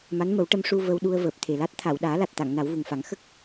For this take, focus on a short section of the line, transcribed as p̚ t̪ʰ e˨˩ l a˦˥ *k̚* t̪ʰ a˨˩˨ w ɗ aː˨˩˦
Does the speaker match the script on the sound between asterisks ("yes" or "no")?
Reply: no